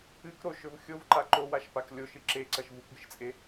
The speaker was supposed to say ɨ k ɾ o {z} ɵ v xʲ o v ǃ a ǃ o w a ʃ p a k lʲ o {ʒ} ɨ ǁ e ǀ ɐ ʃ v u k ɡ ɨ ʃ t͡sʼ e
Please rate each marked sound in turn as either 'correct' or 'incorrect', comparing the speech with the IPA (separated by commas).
incorrect, incorrect